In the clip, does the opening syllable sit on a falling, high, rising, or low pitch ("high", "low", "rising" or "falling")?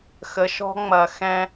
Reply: rising